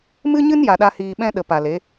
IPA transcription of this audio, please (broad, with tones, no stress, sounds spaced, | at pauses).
m ɨ˦ ɲ ɨ˦ n j a˨ ɗ a˧ h iː˨ ɓ ɛ̃˦ ɗ ə˨ p a˨ l e˨˦